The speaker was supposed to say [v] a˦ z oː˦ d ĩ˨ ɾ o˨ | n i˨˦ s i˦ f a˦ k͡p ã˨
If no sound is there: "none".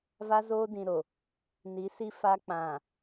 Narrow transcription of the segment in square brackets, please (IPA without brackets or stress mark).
v